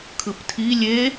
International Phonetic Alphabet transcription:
kʰ ɯ p tʰ i lʲ e

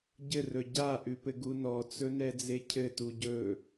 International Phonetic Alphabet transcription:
ɟ ɘ r ɵ ɟ a ʔ ʉ p ɘ ɡ u n ɔ t͡s ɵ n ɛ d͡z e cʰ ɘ t u ɟ ɵ

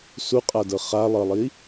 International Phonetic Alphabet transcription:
s u qʼ a d ɤ χ a lˠ ɤ lˠ i

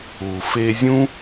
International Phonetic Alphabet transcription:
u˨ f e˧ zʲ ũ˦

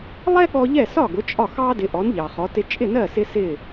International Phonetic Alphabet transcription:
lˠ ɛ˥ ɠ ɔ˧ ʎ ɛ˥˩ s ɒ˥˩ ɡ ʊ˩˥ t͡ʃʼ ɒ˥˩ x ɑ˥ d ɪ˩˥ ʔ ɔ˩˥ n ʎ ɑ˩ χ ɔ˩˥ t ɪ˥ t͡ʃʼ ɪ˥˩ n ɜ˥˩ s ɪ˧ s ɪ˥˩

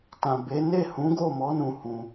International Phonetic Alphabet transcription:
t ã˨ b e˨˦ n e˦˨ h ũ˨˦ ɡ o˦˨ m ɔ˨˦ n ũ˧ h ũ˧

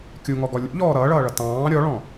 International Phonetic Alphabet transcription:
kʲ u ŋ ɔ ɡ ɔ lʲ ṵ ʎ ɔː ɾ ʌː ɭ ʌː ɭ ʌ t ɑ̃ː ɾʲ ɔ ɭ ɔ̃

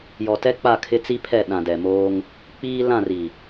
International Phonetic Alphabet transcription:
j ɔ˨ t ɛ˦ k͡p a˦˨ kʰ ɪ˦ t͡s i˦ pʰ ɛ˦˨ ɗ ã˨ d ɛ˨ m oː˦ ŋ | k͡p iː˦ l ã˦˨ r i˨

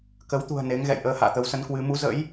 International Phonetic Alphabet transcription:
k ə˨˦ w t̪ ṳ˨˩ ə̯ n e˨˦ ŋ ɣ ɛ̰˧˨ j ʔ əː˧ h a̰ː˧˨ t̪ ə˨˦ w s ə˨˦ n k w ɨ˨˦ m u˨˦ z ə̰˧˥ j

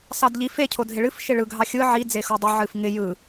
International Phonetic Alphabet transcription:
s ɑ d ʎ i f e cʰ o dʱ ɪ ɭ ɨ f ʃ ɪ ɭ ɯ ɡʱ ɑ xʲ ɯ ʕ i d͡z e x o dˤ ɪ ʕ ɨ f ŋ ɪ j ɯ

